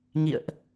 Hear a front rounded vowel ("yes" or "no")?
no